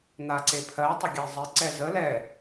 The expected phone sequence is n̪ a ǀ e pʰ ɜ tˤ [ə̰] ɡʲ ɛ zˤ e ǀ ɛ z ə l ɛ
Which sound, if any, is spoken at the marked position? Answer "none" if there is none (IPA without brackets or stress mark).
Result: ə